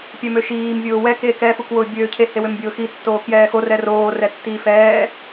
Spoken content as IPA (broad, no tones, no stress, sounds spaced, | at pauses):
pʲ ɛ m ø ʃ iː m vʲ ʊː w ɛ k eː k ɛ f u k w ʊː bʲ øː cʰ e h e w ø m bʲ ʊː x i tː oː k j ɛː x o r ɛ r oː r ɛ tː iː f ɛː